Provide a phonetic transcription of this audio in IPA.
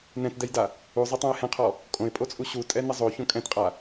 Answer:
n ɛ̃ t d ɛ j d a | u zˤ ɛ tˤ õ ɪ̯ h ɛ̃ qʰ ɔ | kʼ õ ɪ̯ pʼ o t͡sʼ u ɕ u tʼ ɛ n ə zˤ o ç õ kʼ ɛ̃ t qʼ a

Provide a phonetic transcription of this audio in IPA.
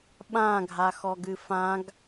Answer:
ɓ ã ɡʱ a x ɔ ɡ ɨ f ã ɡ

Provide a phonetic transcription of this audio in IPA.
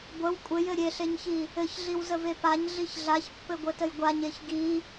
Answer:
ɡʷ ə w kʷʼ ɘ j ɘ ɾʲ e ɬ e ɲ ç i | ɘ ç ɮ i w z ə v e p a ɲ ɮ i ç ɮ a ç pː ɘ ɡʷ ɘ t ə j ɡʷ a ɲ e ç ɡ i

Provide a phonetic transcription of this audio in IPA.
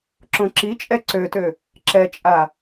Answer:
ǁ õ ǁ i t͡ʃʼ ɛ ǀ ø t ø | ǁ ɛ t͡ʃʼ a

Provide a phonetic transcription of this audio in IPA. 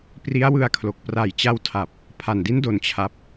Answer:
p r i˦˥ a̯ w ɯ˧ a̯ kʰ l o˨˩ k̚ p r a˨˩ j t͡ɕ a˧ w tʰ a˨˩ p̚ | pʰ a˨˩ n d i˦˥ n d o˧ n t͡ɕʰ a˦˥ p̚

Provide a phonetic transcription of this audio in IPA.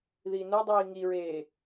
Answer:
ð iː n o dˤ iː ŋ i ɹ eː

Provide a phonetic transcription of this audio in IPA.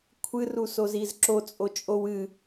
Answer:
kʷʰ ɨ r u s o z i z ǁ o t͡sʼ o t͡ʃʼ o w ɨ

